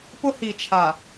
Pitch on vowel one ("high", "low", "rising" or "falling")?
high